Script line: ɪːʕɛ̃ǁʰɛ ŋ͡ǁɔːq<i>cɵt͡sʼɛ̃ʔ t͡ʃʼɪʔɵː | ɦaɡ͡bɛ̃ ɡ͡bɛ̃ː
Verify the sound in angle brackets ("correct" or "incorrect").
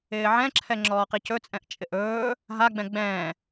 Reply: correct